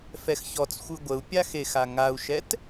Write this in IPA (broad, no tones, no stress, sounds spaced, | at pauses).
f ɛ x ç ɔ t͡s xʷ ɯ ɡʷ ə u̯ pʲ a x e x a ŋ a u̯ ʃ ɛ t